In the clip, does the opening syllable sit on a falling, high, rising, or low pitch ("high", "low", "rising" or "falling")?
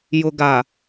low